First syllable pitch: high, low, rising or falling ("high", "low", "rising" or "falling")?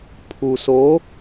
low